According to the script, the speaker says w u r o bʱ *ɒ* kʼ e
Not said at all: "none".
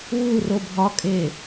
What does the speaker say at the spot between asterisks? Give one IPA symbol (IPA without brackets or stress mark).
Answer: ɒ